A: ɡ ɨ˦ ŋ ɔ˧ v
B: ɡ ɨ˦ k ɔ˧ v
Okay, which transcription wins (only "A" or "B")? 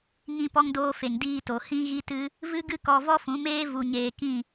B